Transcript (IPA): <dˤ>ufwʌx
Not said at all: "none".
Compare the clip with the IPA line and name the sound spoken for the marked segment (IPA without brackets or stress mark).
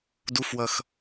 d